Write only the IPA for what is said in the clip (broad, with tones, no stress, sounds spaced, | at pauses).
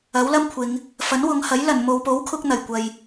ɐ˨˥ w l ɐ˥ m kʷʰ ɪ˨˧ ŋ | f ɐ˨˥ n w ʊ˨˧ ŋ h ɐ˨˥ j l ɐ˨˩ n m o˨ w p o˨˥ w kʰ ʊ˧ k̚ n̪ ɐ˨˩ j kʷ ɐ˨ j